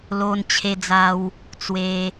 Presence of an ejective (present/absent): absent